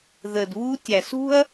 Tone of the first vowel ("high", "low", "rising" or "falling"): low